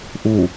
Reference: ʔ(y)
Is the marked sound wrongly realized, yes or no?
yes